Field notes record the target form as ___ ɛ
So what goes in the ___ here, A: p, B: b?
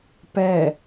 A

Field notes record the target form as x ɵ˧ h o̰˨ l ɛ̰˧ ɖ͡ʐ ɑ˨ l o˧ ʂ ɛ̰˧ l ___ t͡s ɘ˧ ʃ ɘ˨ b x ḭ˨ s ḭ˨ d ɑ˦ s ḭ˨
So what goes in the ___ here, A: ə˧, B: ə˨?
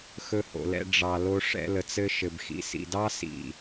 B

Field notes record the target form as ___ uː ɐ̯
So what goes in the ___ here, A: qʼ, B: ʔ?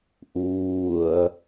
B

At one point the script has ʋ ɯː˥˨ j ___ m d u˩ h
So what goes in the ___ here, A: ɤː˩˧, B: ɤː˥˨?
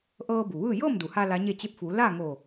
B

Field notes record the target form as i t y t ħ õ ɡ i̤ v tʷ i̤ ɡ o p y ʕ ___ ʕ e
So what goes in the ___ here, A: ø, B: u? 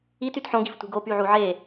B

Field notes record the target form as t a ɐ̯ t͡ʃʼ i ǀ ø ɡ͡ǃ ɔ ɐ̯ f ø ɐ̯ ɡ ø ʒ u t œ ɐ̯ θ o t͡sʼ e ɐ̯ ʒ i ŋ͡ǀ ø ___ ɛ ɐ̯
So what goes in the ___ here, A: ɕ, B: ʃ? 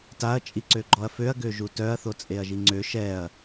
B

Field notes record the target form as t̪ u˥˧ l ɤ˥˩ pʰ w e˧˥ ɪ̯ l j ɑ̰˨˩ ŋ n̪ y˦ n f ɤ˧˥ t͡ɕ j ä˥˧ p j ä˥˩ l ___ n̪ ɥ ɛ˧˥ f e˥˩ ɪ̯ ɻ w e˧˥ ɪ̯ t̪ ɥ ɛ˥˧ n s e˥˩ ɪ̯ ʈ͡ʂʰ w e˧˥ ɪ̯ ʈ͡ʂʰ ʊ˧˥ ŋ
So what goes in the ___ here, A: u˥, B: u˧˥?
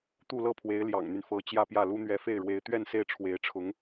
A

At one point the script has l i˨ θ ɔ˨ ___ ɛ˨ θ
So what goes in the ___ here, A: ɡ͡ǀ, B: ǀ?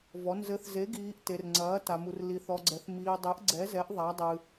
A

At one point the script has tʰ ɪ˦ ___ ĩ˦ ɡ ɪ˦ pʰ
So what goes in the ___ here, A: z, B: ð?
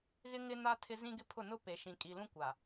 A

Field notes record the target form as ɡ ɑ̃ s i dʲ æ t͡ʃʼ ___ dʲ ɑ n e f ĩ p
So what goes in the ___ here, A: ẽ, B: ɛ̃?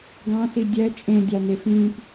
A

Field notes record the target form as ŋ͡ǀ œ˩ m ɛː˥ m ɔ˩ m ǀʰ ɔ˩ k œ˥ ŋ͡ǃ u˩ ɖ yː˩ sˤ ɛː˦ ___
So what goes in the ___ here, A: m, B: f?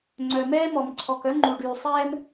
A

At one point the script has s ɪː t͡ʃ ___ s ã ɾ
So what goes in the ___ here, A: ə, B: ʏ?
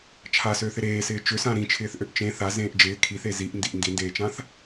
B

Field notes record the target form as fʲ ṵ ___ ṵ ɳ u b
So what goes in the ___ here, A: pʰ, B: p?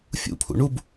A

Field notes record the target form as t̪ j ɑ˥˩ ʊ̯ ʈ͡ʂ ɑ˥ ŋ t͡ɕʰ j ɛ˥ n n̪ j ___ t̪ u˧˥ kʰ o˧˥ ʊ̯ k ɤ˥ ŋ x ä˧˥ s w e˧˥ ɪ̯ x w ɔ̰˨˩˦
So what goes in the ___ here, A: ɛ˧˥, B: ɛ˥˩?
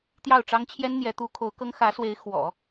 A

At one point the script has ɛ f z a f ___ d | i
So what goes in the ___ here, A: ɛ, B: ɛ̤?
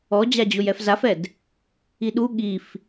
A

